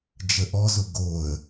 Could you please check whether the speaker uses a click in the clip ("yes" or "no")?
no